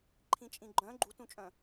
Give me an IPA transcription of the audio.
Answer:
ǃʰ ĩ t͡ʃʼ ĩ ɡ͡ǃ œ̃ ɡ͡ǃ u t ũ t͡ʃʼ œ̃

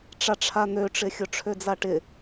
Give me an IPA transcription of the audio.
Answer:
ʈ͡ʂ a ʈ͡ʂʰ a n̪ ø ʈ͡ʂ ɪ xʲ ʊ ʈ͡ʂʰ ø d͡z a ʈ ɪ

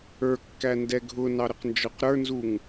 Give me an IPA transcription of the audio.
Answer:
ə˞ kː æ n d ɛ ɡʱ ʊ n ɑ ɾ ə q n d͡ʒ ɔ q ɾ ə˞ n z u ŋ

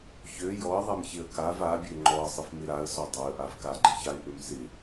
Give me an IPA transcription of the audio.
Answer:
ç ø j ɔ ə̯ ðˤ ɛ m ç ɪ ə̯ k a v a bʲ ø ŋ͡ǃ ɔ ə̯ sˤ ɪ f m ɪ ɾ a ə̯ s ɔ dˤ a ə̯ ʔ a v k a ɡ͡ǃ ɪ ç a ɪ̯ ʔ ø m s ɪ

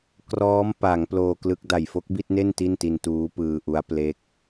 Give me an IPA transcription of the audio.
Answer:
k r ɔː˦˥ m p a˩˦ ŋ p l oː˧ k l ɯ˦˥ k̚ d a˨˩ j f o˦˥ k̚ b i˥˩ t̚ n e˥˩ n t i˥˩ n t i˧ n t uː˦˥ p ɯː˧ ʔ u˦˥ a̯ p l e˦˥ k̚

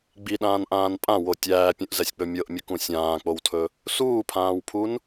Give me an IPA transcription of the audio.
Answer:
ɡ͡b i ɗ ãː n ʔ ãː n pʼ ã w o tʲ æː pʲ ũ ʔ z ɛ sʲ k͡p ɵ mʲ ɤ ʔ mʲ ə k ũ sʲ ãː k͡p o w tʰ ɵ | s uː pʰ ãː w pʰ u n

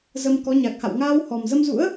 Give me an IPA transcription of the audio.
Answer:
z ə˧ m k ɔ˨˦ ɲ a˨˩ k̚ h a̰˧˨ w ŋ aː˧ w h ɔ˨˩ m z ə˧ m z ṵ˧˥ ə̯

